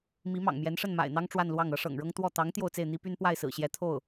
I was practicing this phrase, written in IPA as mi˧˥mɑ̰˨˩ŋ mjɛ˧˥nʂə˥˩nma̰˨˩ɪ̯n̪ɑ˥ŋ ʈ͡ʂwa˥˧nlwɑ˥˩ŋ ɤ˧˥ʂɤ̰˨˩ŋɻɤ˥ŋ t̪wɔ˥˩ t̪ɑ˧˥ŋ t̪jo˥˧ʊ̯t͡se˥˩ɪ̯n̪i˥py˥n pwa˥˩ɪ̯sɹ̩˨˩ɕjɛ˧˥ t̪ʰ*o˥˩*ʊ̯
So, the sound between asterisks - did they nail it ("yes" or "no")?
yes